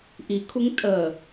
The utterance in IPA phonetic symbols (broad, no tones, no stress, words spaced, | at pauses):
ʔikʰuŋ tʼə